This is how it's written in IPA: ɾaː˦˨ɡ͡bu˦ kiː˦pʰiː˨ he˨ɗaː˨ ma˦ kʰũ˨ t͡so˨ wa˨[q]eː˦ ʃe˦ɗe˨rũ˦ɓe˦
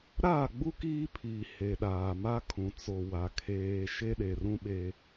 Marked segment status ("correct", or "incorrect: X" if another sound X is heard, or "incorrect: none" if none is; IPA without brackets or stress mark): incorrect: kʰ